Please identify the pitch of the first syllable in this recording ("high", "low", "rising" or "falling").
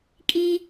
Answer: high